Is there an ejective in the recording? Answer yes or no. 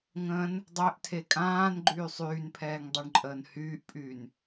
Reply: yes